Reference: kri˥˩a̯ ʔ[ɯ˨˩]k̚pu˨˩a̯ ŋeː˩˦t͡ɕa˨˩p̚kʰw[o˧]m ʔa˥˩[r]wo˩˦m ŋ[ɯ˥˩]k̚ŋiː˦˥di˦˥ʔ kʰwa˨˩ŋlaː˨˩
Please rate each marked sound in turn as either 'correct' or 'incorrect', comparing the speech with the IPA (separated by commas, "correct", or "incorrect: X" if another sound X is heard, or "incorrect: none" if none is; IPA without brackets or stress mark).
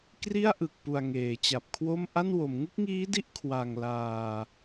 correct, incorrect: o˥˩, incorrect: n, incorrect: u˥˩